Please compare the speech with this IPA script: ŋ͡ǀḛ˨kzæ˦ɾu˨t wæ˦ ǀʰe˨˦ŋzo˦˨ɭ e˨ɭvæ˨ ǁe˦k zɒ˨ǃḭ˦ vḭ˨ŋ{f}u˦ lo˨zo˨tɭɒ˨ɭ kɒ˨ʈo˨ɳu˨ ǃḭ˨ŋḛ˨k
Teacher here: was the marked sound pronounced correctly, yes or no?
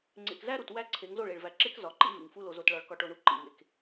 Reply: yes